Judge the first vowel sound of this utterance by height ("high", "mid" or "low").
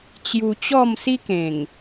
high